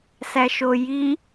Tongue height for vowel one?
low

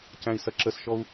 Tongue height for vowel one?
low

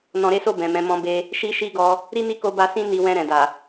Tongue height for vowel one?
mid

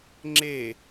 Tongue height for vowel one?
mid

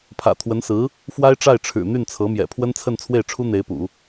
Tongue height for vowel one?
low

